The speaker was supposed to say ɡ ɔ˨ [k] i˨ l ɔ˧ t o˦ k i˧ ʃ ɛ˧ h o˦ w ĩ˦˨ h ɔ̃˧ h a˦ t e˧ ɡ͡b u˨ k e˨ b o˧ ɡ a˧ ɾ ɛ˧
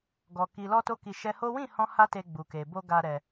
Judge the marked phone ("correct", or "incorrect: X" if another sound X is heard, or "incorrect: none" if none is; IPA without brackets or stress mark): correct